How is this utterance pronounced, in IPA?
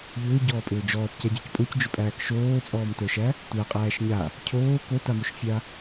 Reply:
ʎ ʏː ɟ ɔː pʼ ʏː d͡ʒ ɔː t c æ ɟ ə˞ c pʼ o c d͡ʒ ʏ pʼ æː k ʃ oː t͡sʼ ɔː m t ə˞ ʃ æ | tʷ æ qʼ æː ʃ ɲ a | cʰ oː k o t a m o ʃ fʲ a

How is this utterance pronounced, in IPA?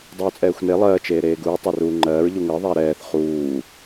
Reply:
dˤ uː t͡sʼ ɛː xʷ n e lˠ ɜː t͡ʃ eː ɾ eː ɡ uː tˤ ɛ r uː ŋ͡ǃ ɜː ɹ ʎ u ŋ ɜ ðˤ æ ɾ ɛː θ χ uː

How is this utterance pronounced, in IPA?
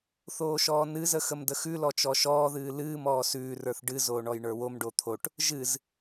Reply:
θ oː ʃ ɔː n ɨ z ə x ə m d ə x ʉ l ɔ t͡ʃ ɔ ʃ ɔː ð ɨː l ɨː m ɔː s ʉː r ə˞ θ ɖ ɨ z oː ɳ ɔ j ɳ ə˞ w o m ɖ o t̪ʰ o ʈ | ʒ ɨ z

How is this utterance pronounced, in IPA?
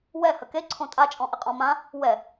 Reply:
w ɛ h ə k e ǀʰ õ tʼ a t͡ʃʼ ɔ̃ ʔ ɪ qʼ ɔ̃ m ã | w ɛ

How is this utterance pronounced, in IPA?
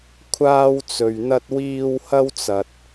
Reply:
kʷʰ aː˥ w t͡s ɵ˧ ɥ n̪ ɐ˥ t̚ w iː˥ w h ɐ˥ w t͡s ɐ˧ t̚

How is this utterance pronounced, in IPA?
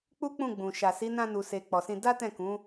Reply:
k͡p u˦ k͡p ũ˦˨ ɡ͡b ũ˨ ʃ a˨ s i˨˦ n ã˧ n u˨ s e˨ k͡p ɔ˨ s ĩ˧ d a˦ t ɛ̃˦˨ k ũ˨˦

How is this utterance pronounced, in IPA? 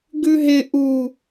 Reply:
ɡ ʉ ɦ ɪ ʔ u

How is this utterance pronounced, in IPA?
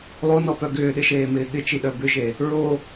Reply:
lˠ o n ɔ p œ ɡ ʏː ɗ ɪ ʃ eː m ɪː ɠ ɪ t͡ʃ i ɗ œ b ʏ ʒ e | ɹ o

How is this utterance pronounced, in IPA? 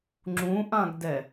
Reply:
ŋ͡ǁ ũ ʔ ã ɡ d ɛ

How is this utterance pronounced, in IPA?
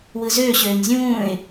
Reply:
w ɯ z øː ɕ øː ɲ zʲ ũː ɪ̯

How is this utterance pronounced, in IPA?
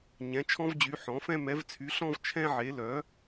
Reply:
ɲ ɛ̃˩˥ t͡ʃʰ ɔ̃˦ v d͡ʑ y˩˥ ħ ɔ̃˩˥ f ɛ̃˦ m ɛ˩˥ v t͡sʰ y˩˥ ɬ ɔ̃˦ v t͡ʃʰ ɛ̃˦ ʕ e˩˥ l œ˩˥

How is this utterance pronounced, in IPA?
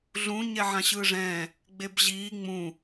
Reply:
ɮ ũ ɲ ɛ ʕ ã ɕ ɯː ʐ ɛ̃ː | ɡ͡b e b ʑ iː ŋ͡m ũ

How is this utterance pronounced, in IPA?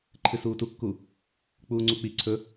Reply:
ǃʰ ɨ s uː t u kː u | k͡p uː ŋ͡ǀ u k͡p i ǀʰ ɵ

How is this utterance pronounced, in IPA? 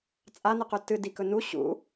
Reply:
t͡sʼ a n ɨ q ʉ t ɨ d i k ɵ n u ɕ ṵ

